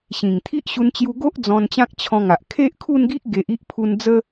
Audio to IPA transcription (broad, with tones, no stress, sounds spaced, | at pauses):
ɕ ĩ˨˩ ŋ t̪ʰ i˦ ʔ ɕ u˧ n t͡ɕ j u˧ ɡ o˦ ʔ d͡z ɔ̃˧ n t͡ɕ ã˦ k̚ t͡ɕʰ ɔ̃˧ ŋ a˨ ʔ kʰ e˦ ʔ kʰ u˥˧ n ɡ i˦ ʔ ɡ e˨ ʔ i˦ ʔ pʰ u˧ n d͡z ə˦